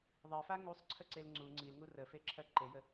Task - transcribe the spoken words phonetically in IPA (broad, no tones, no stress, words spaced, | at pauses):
ðˤɜfa ŋusˤǀʰəǀel ŋ͡ǀu ŋ͡ǀilŋu rəfeǁʰɜ ǃejə